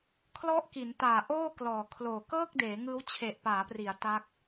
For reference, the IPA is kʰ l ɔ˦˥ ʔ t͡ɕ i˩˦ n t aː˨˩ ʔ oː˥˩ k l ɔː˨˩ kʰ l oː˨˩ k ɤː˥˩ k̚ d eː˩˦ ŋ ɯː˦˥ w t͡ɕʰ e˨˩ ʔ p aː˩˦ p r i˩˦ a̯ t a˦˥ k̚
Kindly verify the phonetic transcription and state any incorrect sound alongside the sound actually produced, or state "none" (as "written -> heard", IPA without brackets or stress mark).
t͡ɕ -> k